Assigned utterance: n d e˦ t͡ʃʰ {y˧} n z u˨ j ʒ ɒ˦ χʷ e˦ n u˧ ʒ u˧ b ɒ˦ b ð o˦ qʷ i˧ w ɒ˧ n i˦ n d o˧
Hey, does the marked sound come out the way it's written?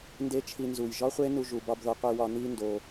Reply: no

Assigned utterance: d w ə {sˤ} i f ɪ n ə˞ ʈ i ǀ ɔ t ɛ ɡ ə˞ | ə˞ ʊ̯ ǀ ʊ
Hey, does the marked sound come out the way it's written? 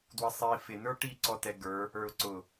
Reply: yes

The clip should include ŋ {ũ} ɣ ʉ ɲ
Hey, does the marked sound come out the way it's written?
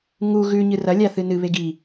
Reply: no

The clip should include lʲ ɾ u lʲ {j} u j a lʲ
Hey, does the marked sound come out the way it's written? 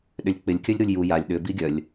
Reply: yes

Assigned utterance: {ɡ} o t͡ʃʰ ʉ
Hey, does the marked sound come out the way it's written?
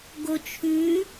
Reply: yes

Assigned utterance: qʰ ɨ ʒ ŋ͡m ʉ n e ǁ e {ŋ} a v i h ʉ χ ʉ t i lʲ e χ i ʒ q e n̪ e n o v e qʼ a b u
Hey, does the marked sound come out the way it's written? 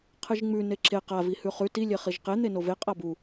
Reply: no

